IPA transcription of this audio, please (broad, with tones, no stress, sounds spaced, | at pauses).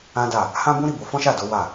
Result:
ã˦ d a˦˨ | h ã˦ b ũ˦ ɾ i˦˨ b o˧ f ɔ̃˦ ʃ a˦˨ d o˨˦ w a˦˨